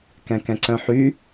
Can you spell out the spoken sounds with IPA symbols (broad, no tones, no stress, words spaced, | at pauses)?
kɛ̃kɛ̃ǀœ̃ħy